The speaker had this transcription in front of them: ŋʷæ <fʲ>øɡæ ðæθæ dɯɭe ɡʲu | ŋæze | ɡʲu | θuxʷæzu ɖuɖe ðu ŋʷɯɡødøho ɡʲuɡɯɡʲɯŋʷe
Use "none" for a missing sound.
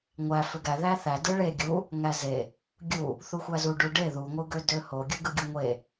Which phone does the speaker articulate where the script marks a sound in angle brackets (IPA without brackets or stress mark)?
f